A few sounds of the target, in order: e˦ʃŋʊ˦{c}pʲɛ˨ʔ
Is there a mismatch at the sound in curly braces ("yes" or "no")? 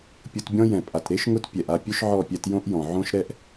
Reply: yes